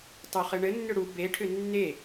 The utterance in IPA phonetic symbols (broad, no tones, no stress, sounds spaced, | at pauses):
tˤ o χ ɘ ɳ ɘ nː ʏ ɽ u b e ʈʰ ʏ nː e